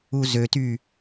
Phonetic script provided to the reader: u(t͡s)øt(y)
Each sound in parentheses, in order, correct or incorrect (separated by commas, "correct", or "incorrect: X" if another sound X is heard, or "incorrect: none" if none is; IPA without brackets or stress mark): incorrect: z, correct